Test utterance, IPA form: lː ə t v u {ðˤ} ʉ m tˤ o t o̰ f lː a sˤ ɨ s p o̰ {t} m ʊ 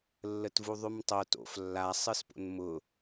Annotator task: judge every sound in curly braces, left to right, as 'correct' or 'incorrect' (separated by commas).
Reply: correct, incorrect